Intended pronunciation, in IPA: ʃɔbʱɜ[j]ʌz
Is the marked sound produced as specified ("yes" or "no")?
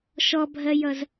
yes